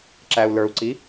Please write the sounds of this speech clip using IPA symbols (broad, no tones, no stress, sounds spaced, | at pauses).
ǁ æ u̯ l ə˞ u̯ ǀ i